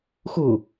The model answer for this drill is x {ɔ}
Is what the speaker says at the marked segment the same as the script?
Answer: no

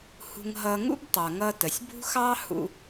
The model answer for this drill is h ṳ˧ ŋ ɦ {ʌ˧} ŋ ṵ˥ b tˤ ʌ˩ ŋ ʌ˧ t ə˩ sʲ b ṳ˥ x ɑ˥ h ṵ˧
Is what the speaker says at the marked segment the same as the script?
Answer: yes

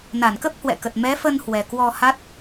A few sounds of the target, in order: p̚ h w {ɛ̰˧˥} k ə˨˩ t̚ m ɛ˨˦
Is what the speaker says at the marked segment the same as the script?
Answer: no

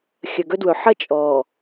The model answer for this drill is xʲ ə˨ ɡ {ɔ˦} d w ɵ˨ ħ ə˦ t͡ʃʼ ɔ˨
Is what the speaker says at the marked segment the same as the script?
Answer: no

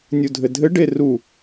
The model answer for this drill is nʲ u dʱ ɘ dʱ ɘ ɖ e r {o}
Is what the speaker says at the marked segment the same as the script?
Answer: no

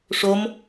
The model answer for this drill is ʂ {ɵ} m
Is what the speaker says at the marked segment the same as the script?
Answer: no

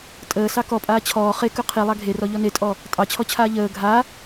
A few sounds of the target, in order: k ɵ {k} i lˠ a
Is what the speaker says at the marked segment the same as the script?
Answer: no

